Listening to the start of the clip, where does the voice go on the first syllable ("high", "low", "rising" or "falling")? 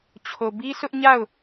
low